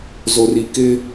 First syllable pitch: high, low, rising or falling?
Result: low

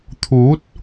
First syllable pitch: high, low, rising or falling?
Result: rising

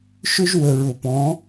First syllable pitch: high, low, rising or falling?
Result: high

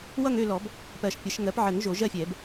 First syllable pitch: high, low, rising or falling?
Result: falling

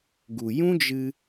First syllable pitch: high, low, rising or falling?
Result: low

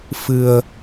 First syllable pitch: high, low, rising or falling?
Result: low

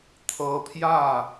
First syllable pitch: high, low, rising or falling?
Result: rising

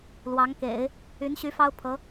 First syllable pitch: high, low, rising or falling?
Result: rising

